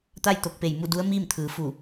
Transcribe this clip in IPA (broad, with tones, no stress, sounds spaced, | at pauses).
t̪ a˥˨ j t̪ o˧ k̚ p e˧˩ j m u˥˨ d u˧˥ ə̯ m iː˥˨ m t̪ʰ ɯː˩˧ f u˧˩